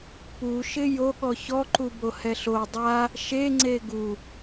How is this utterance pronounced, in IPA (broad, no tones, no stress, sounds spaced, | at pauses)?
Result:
p u ʃ ɪ j o ɠ ɔ ç ɔ ǃ u b o h ɛ ɬ o dˤ a | ʃ e ŋ͡ǀ e ɡ u